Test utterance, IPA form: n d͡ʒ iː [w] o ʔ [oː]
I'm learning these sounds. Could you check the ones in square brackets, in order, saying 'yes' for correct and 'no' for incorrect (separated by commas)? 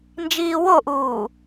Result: yes, no